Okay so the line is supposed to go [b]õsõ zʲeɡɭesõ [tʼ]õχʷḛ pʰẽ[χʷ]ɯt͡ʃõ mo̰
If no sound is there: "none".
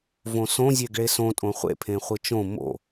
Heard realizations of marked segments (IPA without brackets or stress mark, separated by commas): v, tʼ, χʷ